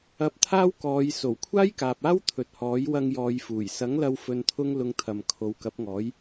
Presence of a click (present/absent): absent